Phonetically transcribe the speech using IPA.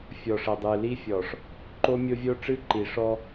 fʲ ɔ˨ ʂ ə˨ dˤ ɨ˨ l i˦ fʲ ɔ˨ ʂ | ǃ o˦ mʲ o˦ vʲ o˦ ʈ͡ʂ ɨ˦ ǃ i˨ ʂ ɔ˦

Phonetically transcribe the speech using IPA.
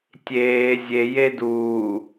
tʲ eː zʲ e j e d uː

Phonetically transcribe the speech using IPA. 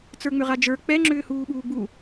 t͡s ə˞ ŋ͡m ʏ ʁ a d͡ʒ ə˞ k͡p ɛ ŋ͡ǁ ʏː h uː ɓ uː ɡ͡b u

